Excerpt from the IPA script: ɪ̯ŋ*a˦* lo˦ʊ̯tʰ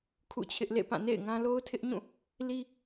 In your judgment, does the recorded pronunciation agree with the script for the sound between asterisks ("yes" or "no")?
no